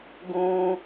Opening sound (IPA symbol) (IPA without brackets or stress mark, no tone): ɡ